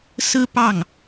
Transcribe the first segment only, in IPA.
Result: s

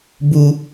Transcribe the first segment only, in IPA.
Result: b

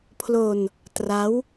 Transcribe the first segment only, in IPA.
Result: pʰ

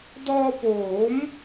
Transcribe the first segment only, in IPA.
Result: d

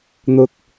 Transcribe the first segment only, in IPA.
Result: n̪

